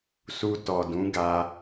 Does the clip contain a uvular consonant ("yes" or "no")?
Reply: no